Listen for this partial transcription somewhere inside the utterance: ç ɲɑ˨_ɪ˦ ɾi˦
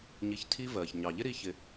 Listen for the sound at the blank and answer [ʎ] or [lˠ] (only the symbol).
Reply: ʎ